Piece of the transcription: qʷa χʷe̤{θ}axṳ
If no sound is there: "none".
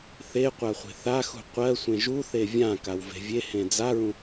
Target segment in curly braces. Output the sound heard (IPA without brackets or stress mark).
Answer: θ